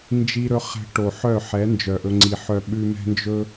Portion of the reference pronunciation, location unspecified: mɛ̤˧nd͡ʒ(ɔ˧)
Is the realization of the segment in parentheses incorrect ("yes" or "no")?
yes